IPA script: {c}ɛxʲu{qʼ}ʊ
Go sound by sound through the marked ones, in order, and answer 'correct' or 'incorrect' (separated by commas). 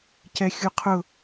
correct, incorrect